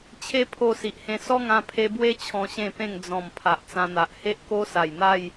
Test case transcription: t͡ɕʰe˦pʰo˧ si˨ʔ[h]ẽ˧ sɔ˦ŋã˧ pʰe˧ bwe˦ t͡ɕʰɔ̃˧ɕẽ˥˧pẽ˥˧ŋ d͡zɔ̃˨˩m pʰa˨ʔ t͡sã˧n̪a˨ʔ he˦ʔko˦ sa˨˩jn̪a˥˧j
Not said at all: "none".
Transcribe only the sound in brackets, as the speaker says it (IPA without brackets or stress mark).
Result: h